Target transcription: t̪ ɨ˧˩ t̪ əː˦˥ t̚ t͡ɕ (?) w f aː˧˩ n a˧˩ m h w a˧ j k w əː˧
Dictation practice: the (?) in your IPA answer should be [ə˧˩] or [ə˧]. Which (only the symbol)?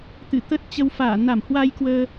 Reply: ə˧